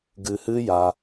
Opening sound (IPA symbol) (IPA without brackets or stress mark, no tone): ɡ